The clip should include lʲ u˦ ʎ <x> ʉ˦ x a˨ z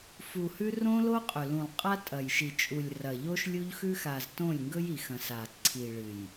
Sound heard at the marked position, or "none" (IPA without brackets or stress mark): x